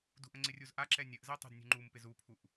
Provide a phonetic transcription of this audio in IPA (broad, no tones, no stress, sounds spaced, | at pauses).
d ṳ ʔ ə̃ ŋ͡ǀ ɪ rʲ u z ʔ a ǁ ɛ nʲ ə ʔ z ɛ tˤ ṳ d nʲ ṳ ŋ͡ǃ u m p ɪ z u pʰ u ʔ